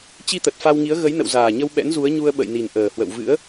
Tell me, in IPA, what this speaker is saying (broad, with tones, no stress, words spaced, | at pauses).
t͡ɕi˧t̪ə˨˩t̚ fa˧wŋi˨˦ə̯ ɣə˨˦jnə̰˧˨wzaː˨˩ɲə˧w ɓɛ̰˧˥nzu˨˦ə̯ɲu˧ə̯ ɓə̰˧˨jni˨˩nʔəː˨˩hwə̰˧˨w vɨ̰˧˥ə̯